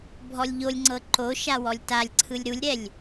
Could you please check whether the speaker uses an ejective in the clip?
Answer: no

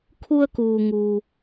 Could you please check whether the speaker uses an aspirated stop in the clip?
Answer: yes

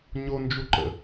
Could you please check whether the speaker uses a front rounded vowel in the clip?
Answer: no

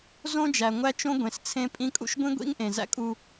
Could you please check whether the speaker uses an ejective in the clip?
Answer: yes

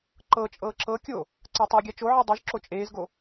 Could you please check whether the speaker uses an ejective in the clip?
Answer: yes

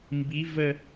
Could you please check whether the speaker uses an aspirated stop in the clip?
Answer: no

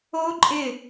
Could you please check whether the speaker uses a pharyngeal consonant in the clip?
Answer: no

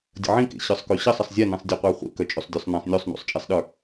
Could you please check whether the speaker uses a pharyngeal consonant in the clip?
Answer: yes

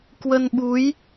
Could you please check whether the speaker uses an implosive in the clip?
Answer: yes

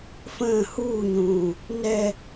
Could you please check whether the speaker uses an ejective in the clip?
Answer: no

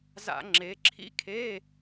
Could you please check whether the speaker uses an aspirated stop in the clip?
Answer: yes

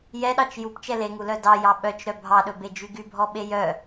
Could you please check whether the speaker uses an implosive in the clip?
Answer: yes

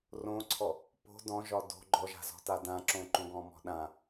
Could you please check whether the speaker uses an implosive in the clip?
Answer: yes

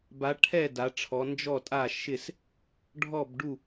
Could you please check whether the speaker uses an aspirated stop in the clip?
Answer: yes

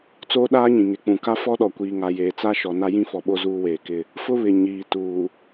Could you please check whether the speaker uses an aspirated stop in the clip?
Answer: no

